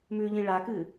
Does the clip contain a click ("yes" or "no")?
no